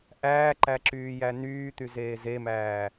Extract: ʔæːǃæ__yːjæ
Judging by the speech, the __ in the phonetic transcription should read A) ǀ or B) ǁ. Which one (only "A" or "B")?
B